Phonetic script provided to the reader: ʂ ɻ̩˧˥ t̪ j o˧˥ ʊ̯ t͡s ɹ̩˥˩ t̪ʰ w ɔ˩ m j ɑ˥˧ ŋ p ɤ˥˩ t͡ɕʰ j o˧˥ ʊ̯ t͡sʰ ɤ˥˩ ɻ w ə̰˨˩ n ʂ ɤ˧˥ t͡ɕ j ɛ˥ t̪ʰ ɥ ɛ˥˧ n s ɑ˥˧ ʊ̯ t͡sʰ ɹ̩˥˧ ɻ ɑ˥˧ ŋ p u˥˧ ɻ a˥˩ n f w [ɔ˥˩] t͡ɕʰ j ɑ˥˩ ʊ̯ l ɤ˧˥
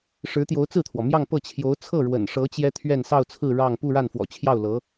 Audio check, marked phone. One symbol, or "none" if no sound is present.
ɔ̰˨˩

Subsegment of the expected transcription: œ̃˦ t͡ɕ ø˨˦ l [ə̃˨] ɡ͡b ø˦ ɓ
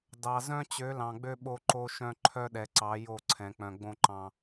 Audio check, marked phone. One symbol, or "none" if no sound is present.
ɑ̃˨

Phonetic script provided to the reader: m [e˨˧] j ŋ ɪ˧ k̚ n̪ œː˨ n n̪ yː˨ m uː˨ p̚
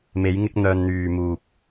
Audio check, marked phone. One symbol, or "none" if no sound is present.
e˨˧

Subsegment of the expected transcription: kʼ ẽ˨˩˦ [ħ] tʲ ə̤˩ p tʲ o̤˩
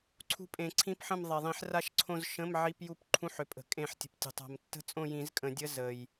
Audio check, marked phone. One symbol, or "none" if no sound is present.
ħ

